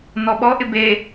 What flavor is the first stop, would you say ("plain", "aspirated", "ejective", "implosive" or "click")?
implosive